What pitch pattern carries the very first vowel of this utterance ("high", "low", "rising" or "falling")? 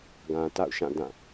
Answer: low